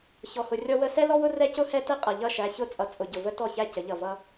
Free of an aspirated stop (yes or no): yes